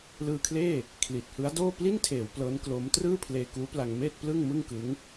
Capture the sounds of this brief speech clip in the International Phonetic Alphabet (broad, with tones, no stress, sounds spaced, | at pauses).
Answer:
l ɯː˧ kʰ l eː˥˩ | kʰ l i˨˩ t̚ h ɯ˦˥ a̯ d oː˥˩ p l i˥˩ n tʰ eː˩˦ w p l ɤː˦˥ n k l o˦˥ m t r ɯː˥˩ pʰ l eː˧ k uː˦˥ p l a˧ ŋ m eː˥˩ t̚ p l ɯ˥˩ ŋ m ɯ˥˩ ŋ k ɯ˦˥ ŋ